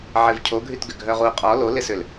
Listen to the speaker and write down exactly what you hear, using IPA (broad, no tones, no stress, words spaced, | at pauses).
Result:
ʕɪvcʰoɡʱytɡʏ ɡʱœʁu qʼɔ lolɪsʏl